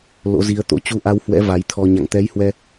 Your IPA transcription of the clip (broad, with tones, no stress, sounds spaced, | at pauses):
l o̰˧˥ z i˨˦ ə̯ t̪ o̰˧˥ t͡ɕ u˧ ʔ a˧ w h w ɛ̰˧˥ v a˨˦ j t̪ʰ ɔ˧ ɲ a̰˧˨ ŋ t̪ ɛ˨˦ j h w ɛ˧